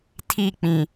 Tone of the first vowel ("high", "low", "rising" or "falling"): falling